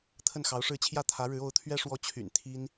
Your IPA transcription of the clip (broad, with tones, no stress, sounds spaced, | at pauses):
t̪ʰ ə˥˩ n x ɑ˧˥ ʊ̯ ʂ ɻ̩˥˧ t͡ɕʰ j ä˥˩ t̪ʰ ä˧˥ ɻ ɻ̩˧˥ o˧˥ ʊ̯ t̪ʰ ɥ ɛ˥ ʂ w ɔ˥˩ t͡ɕʰ y̰˨˩ n t̪ʰ i˥ n